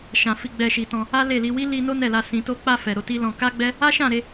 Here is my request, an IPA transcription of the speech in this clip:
ʃ ã˨ f i˧ ɡ͡b ɛ˧ ʃ i˨ t ɔ̃˧ | a˦ l e˦˨ l i˧ w i˦ l i˧ n o˦ n ɛ˦˨ l a˧ s ĩ˨ t o˧ k͡p a˧ f ɛ˨ ɾ o˧ t i˦ l ɔ̃˧ k a˦ ɡ͡b ɛ˦ | a˦ ʃ ã˦˨ ɾ e˧

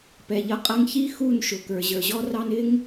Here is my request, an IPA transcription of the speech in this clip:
p ɛ˨ ʎ ʌ˧ qʼ ʌ˧ ŋ ç i˦ x u˦˨ n ʃ ʊ˨ k ə˞˨ ʑ ə˞˨ ʑ ɔ˦ r ɑ˦ n ɪ˦ ŋ

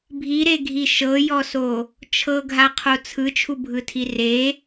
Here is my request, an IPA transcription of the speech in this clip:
bʱ i ɾ e ɡʱ i ʃ ɤ j ɔ s o | t͡ʃʰ ɤ ɡʱ a qʰ o t͡sʰ ɯ t͡ʃʰ u bʱ ɯ tʰ i r e

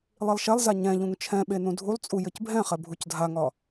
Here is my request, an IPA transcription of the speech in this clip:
lˠ i lˠ ʃ ɛ lˠ z a ɲ ɛ̃ ʎ ũ ŋ t͡ʃʰ ɛ̃ ɓ e n ũ dʱ u lˠ t͡sʼ u j ɘ c bʱ ɛ̃ χ ɛ bʱ u c dʱ a ŋ ɒ

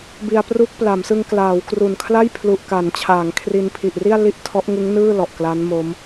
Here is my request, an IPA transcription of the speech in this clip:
b i˧ a̯ p r u˦˥ k̚ p l a˩˦ m s ɯ˧ ŋ k l aː˩˦ w k r u˨˩ n kʰ l a˥˩ j pʰ l u˨˩ ʔ k a˩˦ n t͡ɕʰ aː˩˦ ŋ kʰ r i˧ n pʰ i˨˩ ʔ r i˥˩ a̯ l i˥˩ ʔ tʰ ɔ˦˥ ʔ ŋ ɯ˦˥ ŋ n ɯː˥˩ l ɔ˨˩ ʔ k l a˦˥ n m o˦˥ m

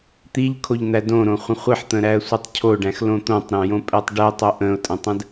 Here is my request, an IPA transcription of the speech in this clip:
t̪ i ʎ kʰ o ʎ n̪ æ d õ ɾ õ χʷ ə̃ χʷ i ħ t̪ ə̃ ɾ æ ə̯ sʷ ʌ tˤ cʰ o ɖ æ̃ x l õ t̪ õ tˤ ɾ æ̃ j õ pʼ ɛ tˤ ɖ ɛ tˤ o ʔ ə̃ ʊ̯ tʼ ə̃ tˤ ə̃ d

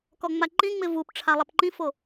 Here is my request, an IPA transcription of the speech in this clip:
k ɔ ŋ͡m a ǃ ĩ ŋ͡m ɪ v u p ʈ͡ʂʰ a lˠ ɛ p ǃ ĩ f o

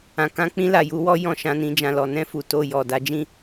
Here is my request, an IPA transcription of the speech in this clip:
ã˨ k ã˨˦ k͡p ĩ˦ l a˦˨ j u˧ w ɔ˦ j ɔ̃˦˨ ʃ ã˧ n ĩ˧ d͡ʒ ã˧ l ɔ˨ n ɛ̃˧ f u˨ t o˧ j ɔ˨ d a˧ d͡ʒ ĩ˦

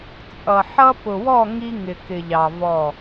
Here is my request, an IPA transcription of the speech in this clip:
t͡sʼ ʌ˨ ħ ʌ˦ p ʊ˨ w ɔ˦˨ ŋ i˦ ŋ ɪ˨ k ɪ˨ ʎ ɑ˨ v ɔ˦˨

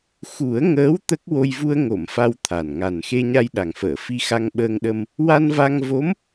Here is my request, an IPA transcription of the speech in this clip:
x u˨˩˦ ə̯ ŋ əː˧˥ w t̪ ə˦˥ k̚ w o˧ j v u˧ ə̯ ŋ o˨˩˨ m f a˧ w t̪ʰ a˨˩ n ŋ a˨˩ n x e˧ ɲ a˧ j ɗ a˨˩ ŋ f əː˨˩˨ f i˧ x a˧ ŋ ɓ əː˧ ŋ ɗ ə˧ m | w a˧ n v a˧ ŋ v o˧˥ m

